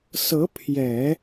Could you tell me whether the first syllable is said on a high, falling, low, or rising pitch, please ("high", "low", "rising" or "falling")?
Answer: rising